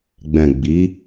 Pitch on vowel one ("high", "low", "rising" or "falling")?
low